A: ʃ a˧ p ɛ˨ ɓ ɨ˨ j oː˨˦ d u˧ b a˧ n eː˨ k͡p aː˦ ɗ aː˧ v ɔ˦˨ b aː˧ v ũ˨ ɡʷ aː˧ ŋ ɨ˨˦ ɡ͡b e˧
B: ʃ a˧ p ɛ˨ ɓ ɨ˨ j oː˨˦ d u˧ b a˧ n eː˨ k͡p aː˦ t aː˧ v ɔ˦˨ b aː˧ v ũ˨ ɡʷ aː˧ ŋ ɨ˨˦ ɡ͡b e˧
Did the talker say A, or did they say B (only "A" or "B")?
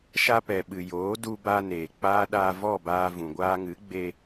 A